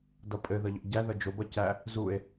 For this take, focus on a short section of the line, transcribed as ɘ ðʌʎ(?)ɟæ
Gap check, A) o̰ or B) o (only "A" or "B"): A